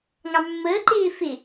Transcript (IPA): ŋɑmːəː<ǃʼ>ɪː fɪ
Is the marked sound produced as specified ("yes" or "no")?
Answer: no